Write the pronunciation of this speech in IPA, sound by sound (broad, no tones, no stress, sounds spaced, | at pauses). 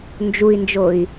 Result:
n d͡ʒ u i̯ n d͡ʒ o i̯